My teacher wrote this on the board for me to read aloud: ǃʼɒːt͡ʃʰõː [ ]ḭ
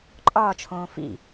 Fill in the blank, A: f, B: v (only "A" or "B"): A